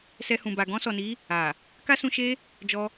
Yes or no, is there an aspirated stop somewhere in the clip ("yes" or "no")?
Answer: no